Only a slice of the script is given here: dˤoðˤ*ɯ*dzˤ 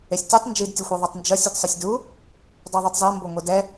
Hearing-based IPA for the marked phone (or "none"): ɯ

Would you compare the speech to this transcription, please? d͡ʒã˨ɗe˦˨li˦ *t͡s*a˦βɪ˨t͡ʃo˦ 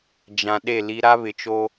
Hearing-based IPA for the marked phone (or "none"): ɾ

